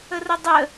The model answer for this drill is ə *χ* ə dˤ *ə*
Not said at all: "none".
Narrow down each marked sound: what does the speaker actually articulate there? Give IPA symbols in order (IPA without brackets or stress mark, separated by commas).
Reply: r, ə